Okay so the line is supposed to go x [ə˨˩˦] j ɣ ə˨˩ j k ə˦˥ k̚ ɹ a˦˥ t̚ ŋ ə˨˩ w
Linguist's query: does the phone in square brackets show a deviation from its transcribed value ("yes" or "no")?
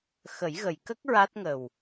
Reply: no